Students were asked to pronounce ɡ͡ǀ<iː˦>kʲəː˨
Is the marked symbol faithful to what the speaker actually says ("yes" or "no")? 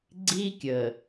yes